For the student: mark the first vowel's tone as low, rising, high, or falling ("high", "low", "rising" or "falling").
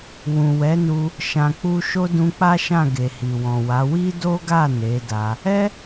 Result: low